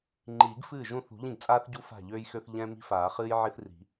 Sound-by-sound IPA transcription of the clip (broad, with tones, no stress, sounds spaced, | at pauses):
ŋ͡ǃ iː˨˩˦ ɡ f ɨː˥˩ ʒ ũ˥˩ θ ṳ˨˩˦ ʎ ĩ˥˩ ɡ t͡sʼ aː˥ θ ɟ u˥ f a̤˥˩ ʎ øː˥ j x ø˥ θ ʎ ɛ̃˥ m i̤˥ f aː˨˩˦ χ ɨː˥ j ʕ i˥ θ r i̤˨˩˦